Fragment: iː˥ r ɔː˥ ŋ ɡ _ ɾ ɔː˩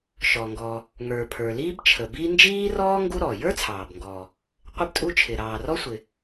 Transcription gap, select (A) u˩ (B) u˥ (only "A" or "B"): B